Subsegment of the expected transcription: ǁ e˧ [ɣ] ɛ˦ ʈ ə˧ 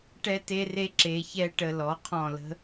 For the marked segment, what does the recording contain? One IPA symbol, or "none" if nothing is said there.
ç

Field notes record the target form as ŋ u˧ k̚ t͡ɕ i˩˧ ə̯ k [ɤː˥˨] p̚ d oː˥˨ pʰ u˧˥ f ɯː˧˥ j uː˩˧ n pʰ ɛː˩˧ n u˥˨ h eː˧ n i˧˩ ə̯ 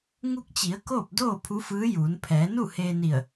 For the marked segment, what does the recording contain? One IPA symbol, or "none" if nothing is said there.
oː˥˨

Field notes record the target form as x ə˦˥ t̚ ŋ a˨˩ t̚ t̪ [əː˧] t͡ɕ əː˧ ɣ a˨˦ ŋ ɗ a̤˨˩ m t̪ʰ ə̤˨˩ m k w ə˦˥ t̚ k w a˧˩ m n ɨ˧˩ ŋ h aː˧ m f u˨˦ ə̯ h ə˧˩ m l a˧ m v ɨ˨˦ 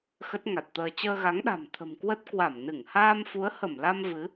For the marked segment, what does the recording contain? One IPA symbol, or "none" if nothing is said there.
əː˧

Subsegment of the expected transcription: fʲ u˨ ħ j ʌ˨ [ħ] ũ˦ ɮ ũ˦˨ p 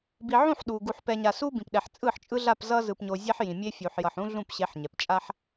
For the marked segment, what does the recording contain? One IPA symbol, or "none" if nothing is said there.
ħ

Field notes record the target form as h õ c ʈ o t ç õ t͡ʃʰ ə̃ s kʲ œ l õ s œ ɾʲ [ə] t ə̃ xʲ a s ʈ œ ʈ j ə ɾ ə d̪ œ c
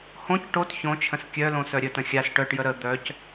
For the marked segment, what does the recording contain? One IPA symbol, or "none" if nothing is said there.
ə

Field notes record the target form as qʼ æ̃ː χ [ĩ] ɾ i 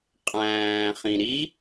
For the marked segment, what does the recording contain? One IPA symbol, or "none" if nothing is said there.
ĩ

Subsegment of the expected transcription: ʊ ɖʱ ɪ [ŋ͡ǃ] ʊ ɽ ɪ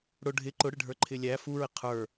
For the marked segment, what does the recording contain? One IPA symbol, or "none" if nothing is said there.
ǃ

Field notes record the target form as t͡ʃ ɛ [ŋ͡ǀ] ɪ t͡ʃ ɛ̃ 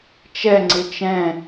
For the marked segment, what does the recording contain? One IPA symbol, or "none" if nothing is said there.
ŋ͡ǀ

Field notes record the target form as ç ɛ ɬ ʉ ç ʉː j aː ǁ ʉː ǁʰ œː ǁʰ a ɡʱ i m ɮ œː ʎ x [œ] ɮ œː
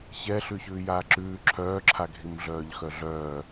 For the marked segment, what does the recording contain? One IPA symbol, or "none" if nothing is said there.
œ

